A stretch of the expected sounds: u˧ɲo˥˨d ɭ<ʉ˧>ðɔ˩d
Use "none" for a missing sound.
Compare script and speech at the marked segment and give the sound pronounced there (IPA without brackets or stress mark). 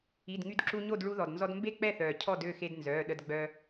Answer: u˧